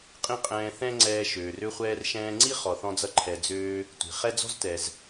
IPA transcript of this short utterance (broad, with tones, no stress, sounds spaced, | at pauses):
qʼ ĩ˥ qʼ ɛ̃ː˧ θ ɛ̃˥ ŋ͡ǀ ɛː˧ ʃ øː˩ r ø˧ χʷ ɛː˧ r ʃ ɛ̃ː˧ ŋ͡ǀ i˥ χ ɔ˩ θ ɔ̃˧ d͡z ʌ˧ ǃʰ ɛ˩ d͡z øː˧ | tʷ i̤˩ χ ɛ˥ d͡z ɔ̤˥ z t ɛ˩ z